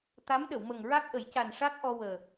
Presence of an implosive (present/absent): present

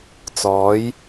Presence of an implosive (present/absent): absent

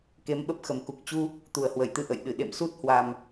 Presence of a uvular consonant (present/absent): absent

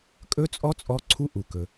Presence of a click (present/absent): present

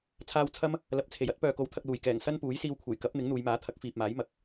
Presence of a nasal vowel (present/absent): absent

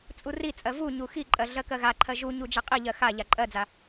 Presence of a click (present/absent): present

